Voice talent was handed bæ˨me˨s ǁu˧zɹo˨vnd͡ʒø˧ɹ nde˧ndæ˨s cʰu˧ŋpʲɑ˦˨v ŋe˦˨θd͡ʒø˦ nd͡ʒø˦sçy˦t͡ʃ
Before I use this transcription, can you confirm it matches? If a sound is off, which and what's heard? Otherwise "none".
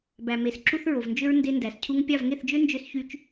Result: z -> θ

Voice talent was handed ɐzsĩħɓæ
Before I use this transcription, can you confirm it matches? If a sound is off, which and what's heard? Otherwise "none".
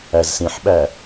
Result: ɐ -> æ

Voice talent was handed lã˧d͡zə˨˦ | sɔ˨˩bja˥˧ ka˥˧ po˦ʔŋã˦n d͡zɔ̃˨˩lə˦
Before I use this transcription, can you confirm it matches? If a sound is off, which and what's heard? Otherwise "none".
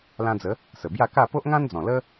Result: ɔ˨˩ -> ə˨˩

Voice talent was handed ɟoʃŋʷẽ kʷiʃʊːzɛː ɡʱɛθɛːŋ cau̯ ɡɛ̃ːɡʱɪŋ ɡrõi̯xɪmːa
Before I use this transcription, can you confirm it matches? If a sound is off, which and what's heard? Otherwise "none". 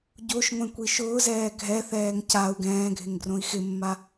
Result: none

